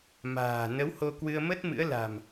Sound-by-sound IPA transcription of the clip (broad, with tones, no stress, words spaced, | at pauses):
ma̤ː˨˩nə˨˦who˧ kwɨ˧ə̯mə˦˥t̚mɨ̰˧˥ə̯la̤˨˩m